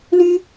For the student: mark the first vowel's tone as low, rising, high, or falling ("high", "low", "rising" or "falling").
high